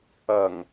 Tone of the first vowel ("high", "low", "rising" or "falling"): low